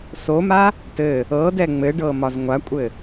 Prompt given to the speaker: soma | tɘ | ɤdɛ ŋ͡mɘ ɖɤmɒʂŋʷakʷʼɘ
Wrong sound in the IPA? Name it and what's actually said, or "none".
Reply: ʂ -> z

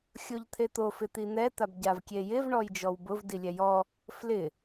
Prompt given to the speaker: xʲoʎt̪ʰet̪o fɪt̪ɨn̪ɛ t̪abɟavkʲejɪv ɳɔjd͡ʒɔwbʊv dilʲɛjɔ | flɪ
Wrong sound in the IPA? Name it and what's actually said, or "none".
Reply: ɨ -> i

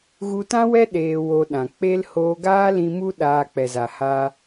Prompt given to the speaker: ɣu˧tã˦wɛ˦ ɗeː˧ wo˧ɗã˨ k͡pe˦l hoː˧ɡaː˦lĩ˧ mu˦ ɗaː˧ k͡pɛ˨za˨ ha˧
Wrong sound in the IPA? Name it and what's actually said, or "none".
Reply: none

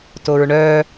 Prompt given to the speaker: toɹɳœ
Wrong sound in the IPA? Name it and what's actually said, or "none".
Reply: none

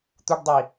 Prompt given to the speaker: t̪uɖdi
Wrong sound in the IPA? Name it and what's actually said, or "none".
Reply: d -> dˤ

